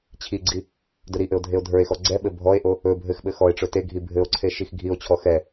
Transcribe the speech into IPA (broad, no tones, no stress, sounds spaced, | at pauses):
t͡ɕʰ i ɡ͡ǀ i | d ɵ ɾ i ʔ ɘ o̯ dʱ e o̯ dʱ ə˞ e̯ x ɔ ɡ͡ǀ ɛ ɓ ɘ bʱ ɔ e̯ ʔ o | ɵ bʱ ɘ x ɓ ɘ x ɔ e̯ ʈ͡ʂ ɵ t e ɡʱ i bʱ ɘ o̯ ǀʰ e ʃ i x ɡʱ i o̯ t͡ɕʰ ɔ x ɛ